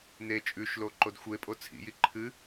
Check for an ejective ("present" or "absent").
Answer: present